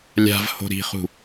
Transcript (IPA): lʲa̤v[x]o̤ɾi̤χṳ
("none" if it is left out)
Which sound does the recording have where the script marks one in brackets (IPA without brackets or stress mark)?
h